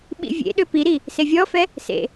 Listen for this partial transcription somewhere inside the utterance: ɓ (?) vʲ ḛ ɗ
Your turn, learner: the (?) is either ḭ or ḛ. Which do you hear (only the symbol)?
ḭ